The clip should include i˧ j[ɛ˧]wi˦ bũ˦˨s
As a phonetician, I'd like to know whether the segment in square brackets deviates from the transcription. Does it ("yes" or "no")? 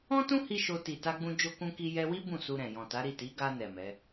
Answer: no